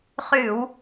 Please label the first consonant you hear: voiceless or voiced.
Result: voiceless